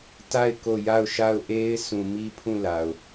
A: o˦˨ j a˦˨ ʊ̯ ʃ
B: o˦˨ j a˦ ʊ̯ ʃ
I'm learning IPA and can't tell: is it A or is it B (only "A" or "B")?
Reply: A